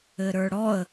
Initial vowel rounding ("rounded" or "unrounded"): unrounded